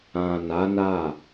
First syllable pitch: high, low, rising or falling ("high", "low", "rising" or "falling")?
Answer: low